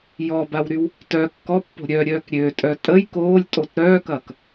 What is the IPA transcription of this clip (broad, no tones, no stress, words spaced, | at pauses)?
jɔbawɾyw | tœ kːɔpːo̤ ɾʲœɾʲœːk ɾʲøtʼœ tʼəj koːlʲtʼot ɾœːkɐːk